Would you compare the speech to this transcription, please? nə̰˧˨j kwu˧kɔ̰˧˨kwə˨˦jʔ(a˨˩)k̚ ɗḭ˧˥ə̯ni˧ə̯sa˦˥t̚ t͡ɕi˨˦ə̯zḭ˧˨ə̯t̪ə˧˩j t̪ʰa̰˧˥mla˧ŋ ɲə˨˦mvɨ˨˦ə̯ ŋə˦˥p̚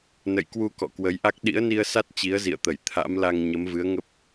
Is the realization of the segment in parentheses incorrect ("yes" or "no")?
yes